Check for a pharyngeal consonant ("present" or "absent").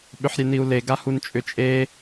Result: present